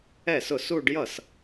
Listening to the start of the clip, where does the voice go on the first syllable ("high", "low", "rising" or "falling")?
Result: falling